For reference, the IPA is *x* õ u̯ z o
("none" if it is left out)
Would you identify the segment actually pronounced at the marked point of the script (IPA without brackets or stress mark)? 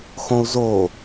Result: x